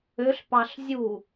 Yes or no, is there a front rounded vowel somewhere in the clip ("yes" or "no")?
yes